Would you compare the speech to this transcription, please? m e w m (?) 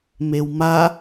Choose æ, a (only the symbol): a